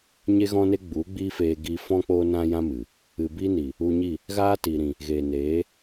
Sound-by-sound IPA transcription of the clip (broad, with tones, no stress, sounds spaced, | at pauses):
ɲ e˦ ɣ ɔ̃˦ n e˦ ɡ͡b u˨˦ ɡ͡b iː˦ f eː˧ ɡ i˧ f ɔ̃˦ k͡p oː˦ n ã˦ j ã˦ m ɨ˨ | ɨ˨ b i˦ n i˨ | u˧ ɲ i˦˨ | ɣ aː˦ t i˨ ɾ ĩ˨ | ɣ eː˨ n eː˨˦